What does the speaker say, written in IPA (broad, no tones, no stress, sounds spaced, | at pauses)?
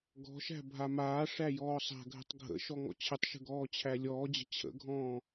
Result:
ɡ ɔ̤ ʃ æ̤ bʱ a m aː ʂ æ j ɔː sˤ a̤ ɡʱ ə̤ tˤ ɡʱ ə̰ ʃ ɔ ŋ ɔ̰ t͡ɕʰ ə tˤ ʃ ə̤ ɡ ɔː t͡ɕʰ æ lʲ ɔː d͡ʑ ə̤ t͡ɕʰ ə̰ ɡʱ ɔ̃ː